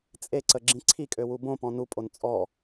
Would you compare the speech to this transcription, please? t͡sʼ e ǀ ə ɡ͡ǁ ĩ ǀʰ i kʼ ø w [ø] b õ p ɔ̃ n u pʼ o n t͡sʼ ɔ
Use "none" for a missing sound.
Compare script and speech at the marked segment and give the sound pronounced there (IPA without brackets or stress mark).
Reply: u